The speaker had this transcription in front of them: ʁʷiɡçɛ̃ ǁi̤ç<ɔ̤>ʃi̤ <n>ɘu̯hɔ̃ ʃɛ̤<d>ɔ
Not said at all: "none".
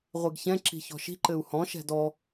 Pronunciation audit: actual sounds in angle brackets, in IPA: ɔ̤, ǃ, d

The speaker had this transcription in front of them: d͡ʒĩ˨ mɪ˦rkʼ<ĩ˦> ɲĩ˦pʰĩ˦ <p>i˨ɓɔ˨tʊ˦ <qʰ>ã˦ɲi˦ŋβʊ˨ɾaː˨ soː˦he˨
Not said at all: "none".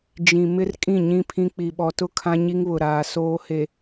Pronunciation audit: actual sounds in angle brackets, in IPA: ĩ˦˨, k͡p, kʰ

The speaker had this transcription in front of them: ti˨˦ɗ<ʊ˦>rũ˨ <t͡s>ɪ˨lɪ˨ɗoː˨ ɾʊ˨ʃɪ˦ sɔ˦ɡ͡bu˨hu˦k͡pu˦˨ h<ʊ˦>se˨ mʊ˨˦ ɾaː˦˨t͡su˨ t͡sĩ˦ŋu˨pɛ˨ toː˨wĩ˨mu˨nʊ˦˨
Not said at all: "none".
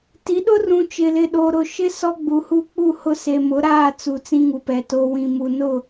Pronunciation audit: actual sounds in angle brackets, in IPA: ʊ˦, t͡ʃ, ʊ˦

